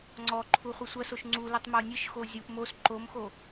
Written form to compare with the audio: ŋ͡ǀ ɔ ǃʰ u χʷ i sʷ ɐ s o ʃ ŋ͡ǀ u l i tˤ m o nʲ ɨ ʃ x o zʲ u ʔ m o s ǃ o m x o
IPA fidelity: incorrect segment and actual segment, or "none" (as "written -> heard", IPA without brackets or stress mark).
none